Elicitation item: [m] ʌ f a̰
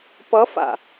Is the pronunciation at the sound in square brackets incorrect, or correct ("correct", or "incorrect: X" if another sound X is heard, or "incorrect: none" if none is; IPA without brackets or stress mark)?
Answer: incorrect: p